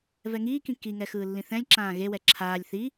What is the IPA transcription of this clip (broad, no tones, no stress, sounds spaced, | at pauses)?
v ɛ ŋ iː k ĩ k i ŋ ɛ x ɯː lː ĩ θ ɛ̃ lʲ ǁ ãː ɣ e w ɛ ǁʰ aː lʲ θ i